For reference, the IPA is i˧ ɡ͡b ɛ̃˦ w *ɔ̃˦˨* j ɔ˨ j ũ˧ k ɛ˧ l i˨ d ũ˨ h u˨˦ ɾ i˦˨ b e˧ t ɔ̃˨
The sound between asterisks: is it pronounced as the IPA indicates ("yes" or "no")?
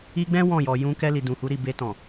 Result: yes